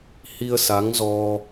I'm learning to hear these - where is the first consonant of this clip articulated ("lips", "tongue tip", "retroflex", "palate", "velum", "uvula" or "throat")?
throat